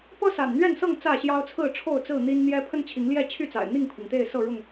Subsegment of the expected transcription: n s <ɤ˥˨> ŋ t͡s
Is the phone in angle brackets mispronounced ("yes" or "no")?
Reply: no